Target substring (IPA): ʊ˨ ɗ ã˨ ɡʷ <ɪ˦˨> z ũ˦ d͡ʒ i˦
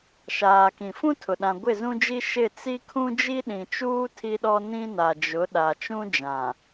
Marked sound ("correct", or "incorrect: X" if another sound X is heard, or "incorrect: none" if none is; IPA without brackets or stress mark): correct